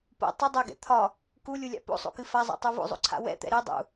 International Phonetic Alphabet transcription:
p o̰ tˤ ʏ dˤ ɛ ɡ ɛ̰ t̪ʰ ɒ | k u lʲ u lʲ a̰ p o̰ sˤ o̰ k ɨ f a zˤ ɛ̰ tˤ u v o̰ zˤ o̰ ǀʰ a̰ w ɛ̰ t̪ ɛ̰ ɾ ɨ dˤ ṵ

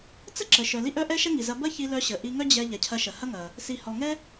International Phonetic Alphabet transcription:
t͡s ə˥ ǁ ə˩ ʃ œ˩ l i˥ ʔ œ˥ ʔ ɛ˥ ʃ ɐ˥ ŋ i˩ z ɐ˧ b ɐ˥ ç i˧ l œ˧ ɕ ə˩ ʔ i˧ ŋ œ˥ d͡ʑ ɛ˧ ʎ ɛ˩ cʰ ɐ˧ ʃ ɐ˩ h ɐ˥ ŋ ɐ˩ | s i˩ h ɔ˩ ŋ ɛ˥

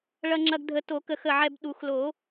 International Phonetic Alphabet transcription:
ɭ ɐ˧ ŋ͡ǁ ɐ˧ ɡ dʱ ə˨˩˦ t o˨˩˦ k ə˨˩˦ x ə˧˩ ʕ ɛ˧ b ɗ u˨˩˦ x l o˨˩˦

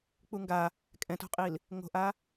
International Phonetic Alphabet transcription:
k͡p u ŋ ɡ a | kʼ ɛ̃ t o̤ qʼ i l | ŋ o̤ ʔ a

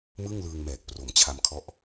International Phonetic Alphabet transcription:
m ɯ˥˩ ŋ l ɯː˧ ŋ m ɛː˨˩ k̚ p r o˨˩ m t͡ɕʰ a˧ m kʰ ɔ˦˥ ʔ

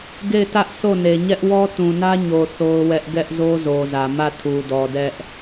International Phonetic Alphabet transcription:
ɡ e˦˨ ɪ̯ t ä˦ ʔ s o˦˨ n e˨ ɲ ɛ˦ ʔ w ɔ˦ t ũ˨ n ä˦ ɲ o˨ θ o˦ ʊ̯ w ɛ˦ ʔ ɡ ɛ˦ ʔ z o˦ z o˨ z ä˨ m ä˦˨ tʰ u˨ d ɔ˨ d ɛ˦ ʔ

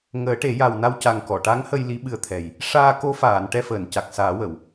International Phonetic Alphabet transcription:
ŋ əː˨˩˦ ʈ e˨˩˦ j a˨˩ w n a˧ w c a˨˩ ŋ k ɔ˨˩˨ ʈ a˧˥ ŋ h ə˧ j l i˧˥ ɓ ɨ˧ ə̯ t̪ʰ ɛ˨˩ j | ʂ aː˧ k o˧˥ f aː˨˩˨ n ʈ ɛ˧ f əː˨˩˨ n c a˨˩ k̚ s aː˨˩˦ w ə˨˩˨ w

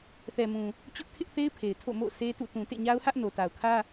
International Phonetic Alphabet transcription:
θ ɛ˨ m ũ˨ | t͡ɕ ʊ˦ ʔ kʰ ɪ˦ ʔ θ e˦ ɪ̯ pʰ e˨ ɪ̯ tʰ o̰˦˨ m o̰˦˨ sʰ e˦ t ṵ˦˨ t ũ˨ t ḛ˦˨ ɲ a˦ ʊ̯ h ä˦ ʔ n o˨ t a˨ ʊ̯ kʰ ä˦

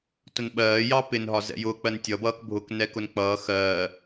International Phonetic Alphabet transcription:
t ʊ n ɓ ɜː j ɑ p ɪ n ɦ ɒ z ɛ̰ j ʊ k͡p ɜ n tʲ ʌ b ʌː k bʱ ʊ k n ɛ k ʊ n k͡p ʌː x ɜː

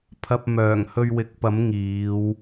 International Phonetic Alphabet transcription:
pʰ ɐ˧ p̚ m œː˨˩ ŋ h ɵ˧ ɥ w ɪ˨˥ k̚ p ɐ˨˥ m ŋ iː˨˧ w

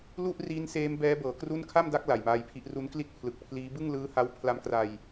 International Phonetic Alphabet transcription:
l u˥˩ ʔ r iː˦˥ n s eː˦˥ m b ɛː˦˥ b ɤː˩˦ k r u˥˩ n kʰ a˥˩ m d a˦˥ k̚ l a˨˩ j m aː˧ j pʰ i˦˥ ʔ r u˦˥ n k l i˥˩ t̚ pʰ l ɯ˨˩ k̚ pʰ l iː˦˥ b ɯ˥˩ ŋ l ɯː˦˥ h a˦˥ w pʰ l a˦˥ m k r a˧ j

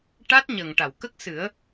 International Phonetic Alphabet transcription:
ʈ a˦˥ t̚ ɲ ə˨˩ ŋ ʈ a˨˩˨ w k ə˦˥ k̚ s ɨ˨˩˦ ə̯

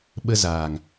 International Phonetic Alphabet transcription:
ɓ ə˧ z aː˨ ŋ

